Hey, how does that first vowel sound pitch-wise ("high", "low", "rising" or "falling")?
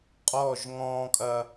falling